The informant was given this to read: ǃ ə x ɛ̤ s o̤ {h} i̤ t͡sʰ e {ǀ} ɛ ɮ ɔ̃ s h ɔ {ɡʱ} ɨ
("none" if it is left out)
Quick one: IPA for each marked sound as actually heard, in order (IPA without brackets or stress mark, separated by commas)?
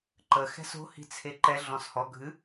h, ǃ, ɡʱ